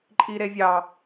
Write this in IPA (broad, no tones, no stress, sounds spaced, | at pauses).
ǃʼ i ɾ e vʲ ɑ